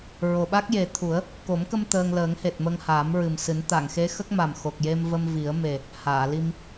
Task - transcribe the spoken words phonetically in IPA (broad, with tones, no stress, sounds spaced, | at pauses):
ɹ o˨˩ ɓ a˦˥ k̚ j e˨˩ t̪ʰ u˨˩˦ ə̯ | k o˨˩˦ m k ə˧ m t̪ əː˧ ŋ l əː˨˩˦ ŋ h e˨˩ t̚ m ə˧ ŋ h aː˨˩˦ m ɹ ɨ˨˩ m s ɨ˨˩˦ n t̪ a˨˩˨ ŋ x e˧˥ x ə˦˥ k̚ m a˨˩ m x o˨˩ k̚ j e˧ m v ə˧ m v i˨˩˦ ə̯ m e˨˩ | h aː˨˩˨ l i˧ m